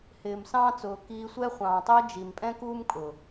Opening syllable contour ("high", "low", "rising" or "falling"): low